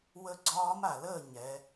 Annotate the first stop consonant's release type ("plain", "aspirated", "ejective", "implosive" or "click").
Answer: click